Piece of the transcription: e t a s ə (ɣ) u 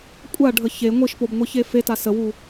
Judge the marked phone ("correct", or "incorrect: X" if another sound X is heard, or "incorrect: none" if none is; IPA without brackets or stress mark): incorrect: w